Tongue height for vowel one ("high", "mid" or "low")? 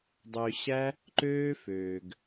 mid